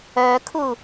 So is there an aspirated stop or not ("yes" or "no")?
yes